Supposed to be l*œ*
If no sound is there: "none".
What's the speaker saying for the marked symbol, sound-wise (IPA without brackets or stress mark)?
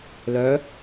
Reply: œ